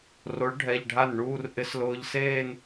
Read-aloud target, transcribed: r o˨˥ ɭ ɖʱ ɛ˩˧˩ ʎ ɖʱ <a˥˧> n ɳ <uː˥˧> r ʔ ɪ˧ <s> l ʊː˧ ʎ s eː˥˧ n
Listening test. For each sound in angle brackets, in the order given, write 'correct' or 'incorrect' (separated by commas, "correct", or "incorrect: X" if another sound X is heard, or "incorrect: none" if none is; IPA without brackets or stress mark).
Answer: incorrect: a˥˩, correct, correct